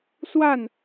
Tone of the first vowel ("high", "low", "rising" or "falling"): falling